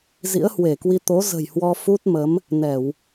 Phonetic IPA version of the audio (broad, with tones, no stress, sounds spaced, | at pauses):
z ḭ˧˥ ə̯ h w e˧˩ k w i˧ t̪ o˨˦ z ə̤˨˩ j h w ɔ˧ f u˦˥ t̚ m ə˨˦ m | n ɛ˧˩˨ w